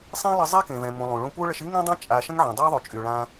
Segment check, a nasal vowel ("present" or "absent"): present